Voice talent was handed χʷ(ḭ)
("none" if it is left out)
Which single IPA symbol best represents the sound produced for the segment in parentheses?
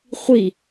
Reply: i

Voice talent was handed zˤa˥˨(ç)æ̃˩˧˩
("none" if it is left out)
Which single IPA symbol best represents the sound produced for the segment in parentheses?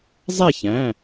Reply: ç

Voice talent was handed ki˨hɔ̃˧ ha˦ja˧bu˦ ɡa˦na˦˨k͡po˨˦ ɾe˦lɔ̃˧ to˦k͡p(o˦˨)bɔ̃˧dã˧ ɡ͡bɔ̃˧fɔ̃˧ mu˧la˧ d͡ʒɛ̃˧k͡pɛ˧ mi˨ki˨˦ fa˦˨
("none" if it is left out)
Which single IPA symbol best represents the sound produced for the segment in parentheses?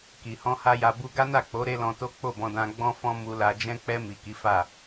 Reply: o˦˨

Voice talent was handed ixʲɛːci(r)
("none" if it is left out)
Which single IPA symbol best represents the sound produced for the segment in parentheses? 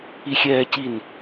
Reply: n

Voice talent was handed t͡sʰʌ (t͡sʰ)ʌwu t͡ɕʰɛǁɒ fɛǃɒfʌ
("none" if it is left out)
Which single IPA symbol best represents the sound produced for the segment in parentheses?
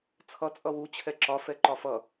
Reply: t͡sʼ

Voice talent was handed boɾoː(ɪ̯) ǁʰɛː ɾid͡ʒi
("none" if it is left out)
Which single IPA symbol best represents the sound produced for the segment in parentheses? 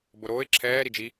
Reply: ɪ̯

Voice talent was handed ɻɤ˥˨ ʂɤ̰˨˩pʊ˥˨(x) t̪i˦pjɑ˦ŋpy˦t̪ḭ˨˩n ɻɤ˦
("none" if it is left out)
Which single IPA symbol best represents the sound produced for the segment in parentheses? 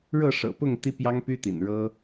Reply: ŋ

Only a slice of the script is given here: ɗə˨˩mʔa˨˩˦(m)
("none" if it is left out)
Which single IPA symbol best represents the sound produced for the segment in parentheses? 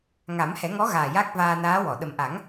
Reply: ŋ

